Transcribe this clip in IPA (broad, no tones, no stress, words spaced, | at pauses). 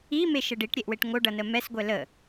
imeʃə ɖiʈɾʲeʔweʈ ŋoɖʌnə mɛsɡʷɛ lə